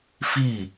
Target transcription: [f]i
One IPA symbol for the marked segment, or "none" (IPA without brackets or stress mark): f